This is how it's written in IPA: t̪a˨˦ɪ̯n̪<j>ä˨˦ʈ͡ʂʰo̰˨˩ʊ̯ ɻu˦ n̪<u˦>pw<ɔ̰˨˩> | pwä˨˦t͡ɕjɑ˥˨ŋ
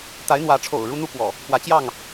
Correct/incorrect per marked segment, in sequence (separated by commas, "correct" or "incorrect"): incorrect, correct, correct